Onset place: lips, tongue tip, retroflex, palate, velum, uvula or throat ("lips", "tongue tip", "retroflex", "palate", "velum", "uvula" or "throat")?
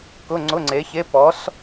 velum